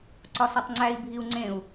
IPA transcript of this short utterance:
ǀ ɒ s ɒ tˤ ŋ͡ǀ æ i̯ bʱ i u̯ ŋ͡ǀ ẽ u̯

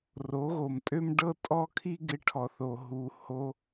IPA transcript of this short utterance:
r o˨˦ ɣ o˨ m tʼ ø˦ m ɖ ɤ˦ tʼ ɔ˦ kʰ i˦ ɡ ɪ˧ ʈʰ ɔ˨ θ o˨ ɦ u˧ h o˦

